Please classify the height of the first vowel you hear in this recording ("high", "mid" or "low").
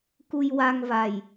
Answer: high